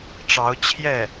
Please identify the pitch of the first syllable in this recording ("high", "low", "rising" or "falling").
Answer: rising